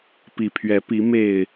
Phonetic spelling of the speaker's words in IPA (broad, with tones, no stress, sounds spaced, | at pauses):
p i˨˩ pʰ ɥ ɛ˨˦ p i˨˦ m e˨˩ ɪ̯